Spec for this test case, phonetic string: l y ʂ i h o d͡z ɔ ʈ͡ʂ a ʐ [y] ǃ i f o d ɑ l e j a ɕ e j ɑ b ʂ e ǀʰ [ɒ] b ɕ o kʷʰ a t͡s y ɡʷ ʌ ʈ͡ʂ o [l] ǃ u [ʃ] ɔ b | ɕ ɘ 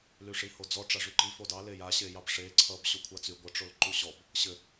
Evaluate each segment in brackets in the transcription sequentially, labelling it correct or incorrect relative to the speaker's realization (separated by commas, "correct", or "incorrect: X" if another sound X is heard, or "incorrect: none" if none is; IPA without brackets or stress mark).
correct, incorrect: ʌ, correct, incorrect: ɕ